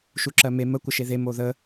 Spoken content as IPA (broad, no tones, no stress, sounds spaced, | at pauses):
ʃ u ǁ ɜ m e m ə kʷ ə ʃ e ð e m o ð ə